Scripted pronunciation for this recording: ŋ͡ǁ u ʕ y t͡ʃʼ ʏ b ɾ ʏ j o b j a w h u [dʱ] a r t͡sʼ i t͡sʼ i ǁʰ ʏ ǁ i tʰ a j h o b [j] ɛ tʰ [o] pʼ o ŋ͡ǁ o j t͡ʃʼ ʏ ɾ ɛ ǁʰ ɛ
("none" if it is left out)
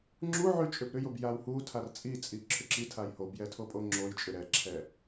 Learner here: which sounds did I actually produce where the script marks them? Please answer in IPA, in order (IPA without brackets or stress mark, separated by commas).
tʰ, j, o